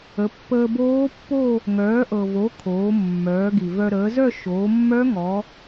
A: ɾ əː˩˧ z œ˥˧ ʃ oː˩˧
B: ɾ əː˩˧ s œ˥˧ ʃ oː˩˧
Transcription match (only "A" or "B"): A